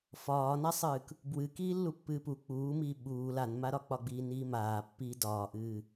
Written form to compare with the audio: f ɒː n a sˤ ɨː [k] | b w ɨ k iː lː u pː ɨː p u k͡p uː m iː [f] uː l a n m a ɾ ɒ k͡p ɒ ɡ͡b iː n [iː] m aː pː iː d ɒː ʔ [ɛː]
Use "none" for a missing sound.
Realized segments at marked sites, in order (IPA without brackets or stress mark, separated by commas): k, ɓ, iː, ɨː